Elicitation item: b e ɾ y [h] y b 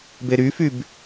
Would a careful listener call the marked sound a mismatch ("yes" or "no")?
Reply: yes